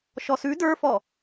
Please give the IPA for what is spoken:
ʃɔsʉ də˞fɔ

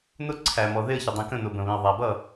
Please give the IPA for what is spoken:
nʊ˥ ǀʰæ˩mɔ˩ ðɪ˥˩ə̯çɪ˩dˤĩ˩kə̃˥˩ nʊ˩ bə̃˩βĩ˩ə̯ ðˤæ˩bʌ˥˩

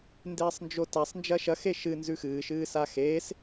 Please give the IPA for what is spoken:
ndeːsˤnd͡ʒotasˤ nd͡ʒɐʃɐ xeʃɨ nzʉxɨː ʃɨːsaxeːs

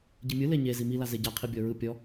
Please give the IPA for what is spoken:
ɟimʲɯ leɲe zimi lazeɟa qʰibʲɔɹɯ pʲɔ

